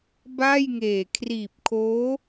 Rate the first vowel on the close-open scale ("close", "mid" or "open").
open